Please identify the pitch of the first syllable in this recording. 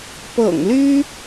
low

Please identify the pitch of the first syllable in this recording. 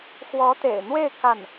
rising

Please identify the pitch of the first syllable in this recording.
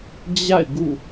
falling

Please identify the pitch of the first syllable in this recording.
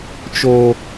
high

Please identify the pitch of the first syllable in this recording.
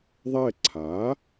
falling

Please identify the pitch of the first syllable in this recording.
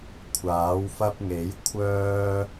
rising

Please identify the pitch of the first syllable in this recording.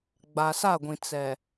low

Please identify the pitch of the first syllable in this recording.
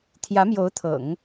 rising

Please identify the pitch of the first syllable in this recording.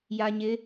low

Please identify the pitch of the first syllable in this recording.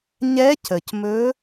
rising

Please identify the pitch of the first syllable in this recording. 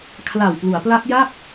low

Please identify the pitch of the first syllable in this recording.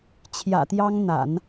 low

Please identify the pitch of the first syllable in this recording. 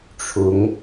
rising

